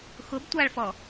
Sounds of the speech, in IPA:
x ʊ b tʷ a ɭ f ɔ

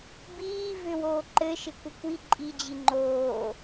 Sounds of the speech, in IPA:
b iː v ʏ w oː ǃ ɘ ʃ ɪ kʷ ə kʷ i ǃʼ i d͡ʑ i ŋ͡ǃ oː

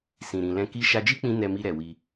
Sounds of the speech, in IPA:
s ĩ˨ ɾ ĩ˨ l ɛ̃˧ k i˧ ʃ a˧ d͡ʒ i˦ k͡p ĩ˧ n ɛ˨ m i˨ ɾ ɛ˨ w i˧

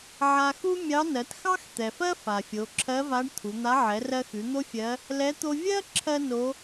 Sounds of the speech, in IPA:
ʕ a˧ x u˥ mʲ ɑ˧˥ n ɜ˩˧ t x ɑ˥ x t̪ ɛ˩ f ɜ˥ f a˩ fʲ o˩˧ ǁʰ ɜ˧˥ v a˧˥ ɖ t̪ʰ u˩˧ n̪ a˧˥ ʕ ɛ˩˧ r ɜ˧ x ʉ˩˧ n̪ o˥ fʲ ɜ˧˥ | l ɛ˧˥ t̪ o˧ vʲ ɜ˥ ǁʰ ɜ˥ n o˧˥

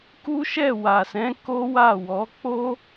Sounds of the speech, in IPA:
k u˦ ʃ ɛ˦˨ w a˨ s ɛ̃˨˦ k o˦ w a˦˨ w ɔ˨˦ k͡p o˦

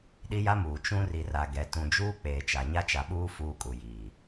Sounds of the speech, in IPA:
ɗ i˦ j a˦ m uː˨ t͡ʃ ũ˦ r i˨ r a˨ ɡ ɛ˨ t ũ˨ d͡ʒ uː˦ k͡p eː˨ t͡ʃ a˨ ɲ a˦ t͡ʃ a˨ ɓ uː˦ f uː˦ kʼ u˨ j iː˨

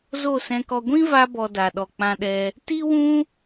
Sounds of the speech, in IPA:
z o˦˨ s ɛ̃˧ k ɔ˧ ɡʷ ĩ˦ v a˧ b ɔ˨ d a˨ ɗ ɔ˨ k͡p ã˧ ɗ ɛ˧ | t i˦ w ũ˦

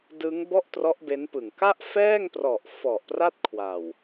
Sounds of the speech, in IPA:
d ɯ˦˥ ŋ b ɔ˥˩ ʔ t r ɔ˦˥ ʔ b e˦˥ n p ɯ˨˩ ŋ k a˥˩ ʔ f ɛː˥˩ ŋ p r ɔ˨˩ ʔ f ɔ˨˩ ʔ p r a˥˩ t̚ kʰ w a˨˩ w

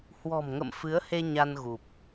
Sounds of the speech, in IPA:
h w ɔ̤˨˩ m ŋ ə̰˧˨ m f ɨ˨˦ ə̯ h e˧ ɲ a˧ n ɣ u˨˩ p̚

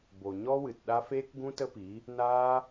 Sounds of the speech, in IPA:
b o˨ ɲ ɔ˦ w ɨ˨ t ɗ a˦ f eː˦ k ɡ ũ˦ t ə˦ p iː˨˦ | n aː˦

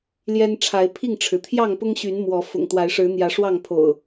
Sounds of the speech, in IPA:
l j ɛ˦ n ʈ͡ʂʰ a˨˦ ɪ̯ pʰ i˥˨ ŋ ʈ͡ʂʰ ɻ̩˩ t̪ʰ j ɑ˥˨ ŋ p ʊ˦ ŋ ɕ y˨˦ n m w ɔ˨˦ f ʊ̰˨˩ ŋ t̪ w a˨˦ ɪ̯ ʂ ɻ̩˨˦ n̪ j ä˨˦ ʂ w ɑ˥˨ ŋ pʰ o̰˨˩ ʊ̯

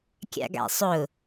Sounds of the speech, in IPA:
kʲ a̰ ɡ a̰ sˤ ʊ

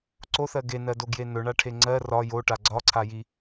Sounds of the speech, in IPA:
ǀ o θ ɜ ɡ e n ɜ d o ɡ j e n ɵ ɳ a ʈʰ e ŋ͡ǀ ɜ r ɒ j o ʈ a ɡ͡ǀ ɒ ǀʰ a j i

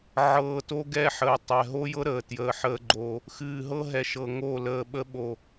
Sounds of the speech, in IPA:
ʕ ɤː˨ t o˦ ɡ ɛ˦ ħ əː˨ tˤ ɛ˨ ɦ o˦ j ɤ˦ ɾ əː˨ t j əː˨ ħ əː˦ ɡ͡ǃ oː˦ | x ɨː˨ ɦ ɤ˦ ɦ ɛ˨ ʃ ɤ˨ ŋ o˦˨ l əː˨ ɓ ə˦ ɓ o˦˨

